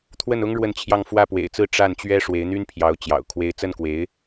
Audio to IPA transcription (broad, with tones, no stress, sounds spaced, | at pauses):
t̪ʰ w ə˥˩ n ʊ˥ ŋ ɻ w ə˥˧ n t͡ɕʰ j ɑ˥˧ ŋ f w ä˥˩ p w ḛ˨˩ ɪ̯ t͡s ɹ̩˥˧ ʈ͡ʂ a˥˩ n t͡ɕ ɥ ɛ˥ ʂ w e˧˥ ɪ̯ n̪ y˥ n pʰ j ɑ˧˥ ʊ̯ t͡ɕ j ɑ̰˨˩ ʊ̯ kʰ w e˥ ɪ̯ t͡s ə˥˩ n k w e˧˥ ɪ̯